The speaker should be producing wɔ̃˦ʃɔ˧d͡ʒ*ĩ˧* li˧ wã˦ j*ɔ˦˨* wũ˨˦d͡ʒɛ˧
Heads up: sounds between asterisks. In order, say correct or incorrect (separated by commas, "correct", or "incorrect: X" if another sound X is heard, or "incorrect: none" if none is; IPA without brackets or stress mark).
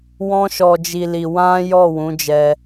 incorrect: i˧, correct